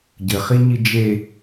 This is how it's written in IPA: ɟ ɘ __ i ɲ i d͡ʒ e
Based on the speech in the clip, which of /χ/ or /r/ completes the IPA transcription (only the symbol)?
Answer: χ